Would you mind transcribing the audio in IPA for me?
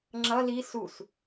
ŋ͡ǁ ʌ l i s u s

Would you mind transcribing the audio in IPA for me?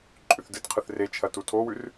ǃʼ ʉ θ d ɨ t qʰ ɨ θ r e t͡ʃʰ ɐ t u tʰ o w ʉ r

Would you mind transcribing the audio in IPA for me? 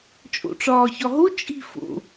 t͡ʃʼ o̰ ʈ͡ʂ ɒː ç ɒ ɦ o t͡ʃʼ i̤ f o̰

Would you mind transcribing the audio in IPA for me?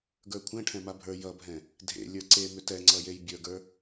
ɡ ə˞ kʷʰ ɛ̃ ʈʰ ɛ̃ m a bʱ ə˞ j ʌ bʱ ɛ̃ | dʱ ḛ lʲ ə˞ ǀ e m ʏ t ɛ ŋ͡ǀ ʌ j e j bʲ ə˞ ɡ ə˞

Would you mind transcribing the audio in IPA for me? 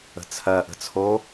ə̤ t͡sʰ ɜ ʔ ə̤ t͡sʰ o

